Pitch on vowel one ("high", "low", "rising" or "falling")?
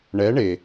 rising